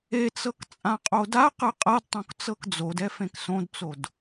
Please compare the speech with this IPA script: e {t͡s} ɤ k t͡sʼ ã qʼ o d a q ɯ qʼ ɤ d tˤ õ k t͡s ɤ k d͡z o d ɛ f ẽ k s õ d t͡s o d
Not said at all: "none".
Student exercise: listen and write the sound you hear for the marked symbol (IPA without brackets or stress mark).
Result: t͡s